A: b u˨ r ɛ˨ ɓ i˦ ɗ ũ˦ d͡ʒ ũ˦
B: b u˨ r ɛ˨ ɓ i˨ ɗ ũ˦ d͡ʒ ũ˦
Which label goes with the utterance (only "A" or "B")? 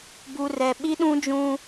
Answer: A